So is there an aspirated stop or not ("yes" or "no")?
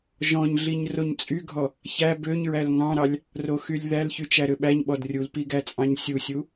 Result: no